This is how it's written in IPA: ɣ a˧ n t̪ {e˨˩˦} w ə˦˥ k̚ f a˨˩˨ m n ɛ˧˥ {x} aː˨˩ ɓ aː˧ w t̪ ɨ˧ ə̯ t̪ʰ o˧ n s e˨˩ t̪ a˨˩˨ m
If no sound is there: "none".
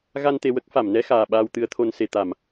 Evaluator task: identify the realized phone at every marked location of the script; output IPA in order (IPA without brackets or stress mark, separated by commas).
e˧, x